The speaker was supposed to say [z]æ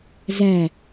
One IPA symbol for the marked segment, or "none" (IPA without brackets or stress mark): z